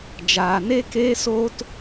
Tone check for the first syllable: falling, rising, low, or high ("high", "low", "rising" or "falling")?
low